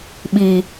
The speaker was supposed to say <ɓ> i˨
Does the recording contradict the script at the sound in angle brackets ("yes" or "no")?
no